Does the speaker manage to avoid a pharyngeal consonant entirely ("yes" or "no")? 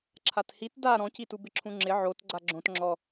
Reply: no